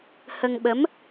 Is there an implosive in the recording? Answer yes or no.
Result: yes